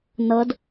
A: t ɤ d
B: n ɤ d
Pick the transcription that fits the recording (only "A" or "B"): B